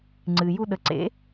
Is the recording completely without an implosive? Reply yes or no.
no